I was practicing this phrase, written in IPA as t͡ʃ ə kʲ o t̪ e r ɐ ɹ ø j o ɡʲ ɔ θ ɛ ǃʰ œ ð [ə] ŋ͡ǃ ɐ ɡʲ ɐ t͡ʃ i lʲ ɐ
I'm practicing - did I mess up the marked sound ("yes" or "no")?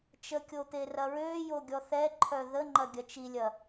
no